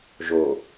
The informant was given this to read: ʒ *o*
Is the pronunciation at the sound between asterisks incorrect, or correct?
correct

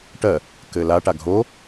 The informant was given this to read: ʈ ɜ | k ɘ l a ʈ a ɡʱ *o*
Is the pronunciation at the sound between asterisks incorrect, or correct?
correct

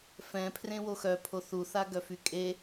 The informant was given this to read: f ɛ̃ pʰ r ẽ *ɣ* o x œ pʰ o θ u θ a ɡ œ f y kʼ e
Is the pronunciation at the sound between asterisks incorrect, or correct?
incorrect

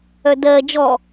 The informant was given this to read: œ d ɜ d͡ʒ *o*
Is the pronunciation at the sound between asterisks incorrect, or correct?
incorrect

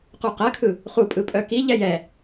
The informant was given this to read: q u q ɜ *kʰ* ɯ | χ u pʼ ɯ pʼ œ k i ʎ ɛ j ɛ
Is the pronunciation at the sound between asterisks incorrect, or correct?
correct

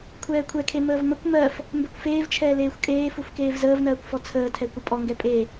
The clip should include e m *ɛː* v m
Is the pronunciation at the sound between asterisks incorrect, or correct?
incorrect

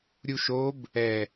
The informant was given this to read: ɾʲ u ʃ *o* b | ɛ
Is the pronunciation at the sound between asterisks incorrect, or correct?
correct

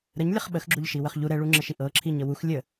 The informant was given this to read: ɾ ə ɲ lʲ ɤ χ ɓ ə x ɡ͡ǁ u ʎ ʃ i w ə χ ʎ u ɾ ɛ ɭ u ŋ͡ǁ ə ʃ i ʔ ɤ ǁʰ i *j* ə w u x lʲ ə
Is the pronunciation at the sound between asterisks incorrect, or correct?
incorrect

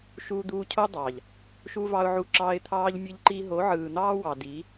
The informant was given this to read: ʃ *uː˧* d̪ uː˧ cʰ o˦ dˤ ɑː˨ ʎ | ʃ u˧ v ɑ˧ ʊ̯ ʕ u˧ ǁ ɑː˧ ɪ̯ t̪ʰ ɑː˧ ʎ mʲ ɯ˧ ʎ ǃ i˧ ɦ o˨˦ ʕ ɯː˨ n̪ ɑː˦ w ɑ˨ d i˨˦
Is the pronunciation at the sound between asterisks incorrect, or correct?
correct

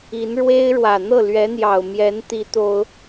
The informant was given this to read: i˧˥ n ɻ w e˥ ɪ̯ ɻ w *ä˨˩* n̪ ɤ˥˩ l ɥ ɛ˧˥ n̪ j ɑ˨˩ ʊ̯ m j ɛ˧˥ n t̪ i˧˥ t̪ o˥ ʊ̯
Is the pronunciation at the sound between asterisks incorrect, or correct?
correct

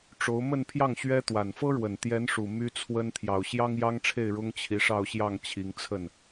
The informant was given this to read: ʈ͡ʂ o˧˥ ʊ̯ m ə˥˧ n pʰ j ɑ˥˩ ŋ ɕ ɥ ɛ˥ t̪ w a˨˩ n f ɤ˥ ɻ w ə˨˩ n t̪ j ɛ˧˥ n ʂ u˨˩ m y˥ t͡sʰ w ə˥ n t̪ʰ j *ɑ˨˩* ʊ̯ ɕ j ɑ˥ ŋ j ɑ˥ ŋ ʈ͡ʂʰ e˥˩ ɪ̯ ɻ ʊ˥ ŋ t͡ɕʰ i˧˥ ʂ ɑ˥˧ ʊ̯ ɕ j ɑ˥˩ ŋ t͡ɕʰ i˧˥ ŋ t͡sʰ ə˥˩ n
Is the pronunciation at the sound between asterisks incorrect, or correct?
correct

